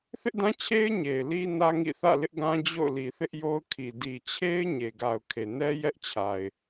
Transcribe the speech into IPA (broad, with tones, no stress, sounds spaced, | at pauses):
θ ɪ˦ ʔ d ã˦ t͡ɕʰ e˦ ɪ̯ ɲ e˨ ɪ̯ l i˦ n ä˦ ŋ ḭ˦˨ θ ä̰˦˨ l ɪ˦ ʔ ɡ ã˦ d͡ʑ o̰˦˨ ʊ̯ l i˨ θ ɪ˦ ʔ j o˦ ʊ̯ kʰ i˨ d i˨ t͡ɕʰ e˦ ɪ̯ ɲ e˨ ɡ a˨ ʊ̯ kʰ e˨ n ɛ˦ j ɛ˦ ʔ t͡ɕʰ a˨ ɪ̯